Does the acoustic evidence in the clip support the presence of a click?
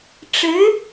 no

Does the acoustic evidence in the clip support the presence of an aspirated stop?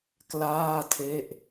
yes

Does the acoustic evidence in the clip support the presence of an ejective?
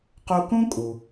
yes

